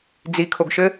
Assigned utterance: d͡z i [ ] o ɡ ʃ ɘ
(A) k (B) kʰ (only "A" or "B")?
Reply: B